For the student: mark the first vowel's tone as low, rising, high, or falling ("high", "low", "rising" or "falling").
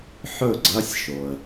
falling